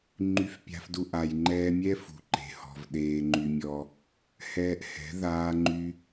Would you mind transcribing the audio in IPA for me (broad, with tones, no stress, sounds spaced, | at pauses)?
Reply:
ŋ͡ǃ y˧ f pʲ a̤˧ f d u˧ ʔ a˨ j ŋ͡ǃ ɛː˧ mʲ ɛ˦ f ṳ˨ ǃ e̤˨ h ɔ̤˨ v ɗ eː˧ ŋ͡ǃ y˧ mʲ ɔ˧ | h ɛː˧ ʔ h ɛ̤˨˦ ð aː˦ ŋ͡ǃ y˦